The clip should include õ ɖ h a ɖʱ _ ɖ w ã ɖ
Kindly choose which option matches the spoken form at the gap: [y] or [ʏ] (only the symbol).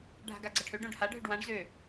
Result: ʏ